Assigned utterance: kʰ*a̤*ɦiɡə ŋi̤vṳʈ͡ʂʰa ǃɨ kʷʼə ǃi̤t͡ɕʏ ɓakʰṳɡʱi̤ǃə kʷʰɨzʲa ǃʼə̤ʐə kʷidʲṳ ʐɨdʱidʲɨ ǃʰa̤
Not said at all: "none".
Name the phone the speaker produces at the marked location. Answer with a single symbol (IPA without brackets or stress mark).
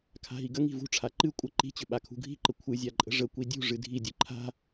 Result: a̤